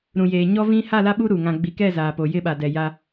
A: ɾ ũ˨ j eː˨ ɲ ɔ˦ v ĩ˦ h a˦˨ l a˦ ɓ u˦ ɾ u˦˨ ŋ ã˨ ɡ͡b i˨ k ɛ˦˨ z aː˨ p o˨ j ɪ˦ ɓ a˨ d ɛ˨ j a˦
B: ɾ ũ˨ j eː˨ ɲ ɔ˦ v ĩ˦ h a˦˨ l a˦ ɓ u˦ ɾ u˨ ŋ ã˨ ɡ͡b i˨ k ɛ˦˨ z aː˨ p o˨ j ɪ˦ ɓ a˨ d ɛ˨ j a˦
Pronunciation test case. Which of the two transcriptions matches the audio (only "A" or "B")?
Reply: B